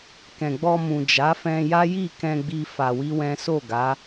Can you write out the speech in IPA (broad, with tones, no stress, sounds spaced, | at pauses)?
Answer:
k ɛ̃˨ ɡ͡b ɔ˧ m ũ˨ d͡ʒ a˨˦ f ɛ̃˧ j a˦ j i˦˨ k ɛ̃˧ ɡ͡b i˧ f a˧ w i˦ w ɛ̃˦ s o˦˨ ɡ a˨˦